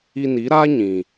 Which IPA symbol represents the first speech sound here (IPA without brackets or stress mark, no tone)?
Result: i